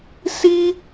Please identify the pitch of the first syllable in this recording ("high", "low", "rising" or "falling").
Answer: high